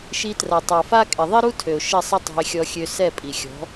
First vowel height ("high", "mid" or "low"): high